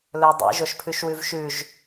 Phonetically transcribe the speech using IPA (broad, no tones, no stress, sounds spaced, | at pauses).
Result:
l ɵ dˤ ḭ ʒ o ʃ pʰ ʉ ʃ w ʉ v ʃ ʉ ʒ